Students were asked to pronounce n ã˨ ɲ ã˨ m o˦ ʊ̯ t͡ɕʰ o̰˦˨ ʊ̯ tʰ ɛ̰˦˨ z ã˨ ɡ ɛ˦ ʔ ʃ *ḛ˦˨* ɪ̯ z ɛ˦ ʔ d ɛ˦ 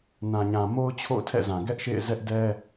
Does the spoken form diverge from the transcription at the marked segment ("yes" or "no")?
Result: no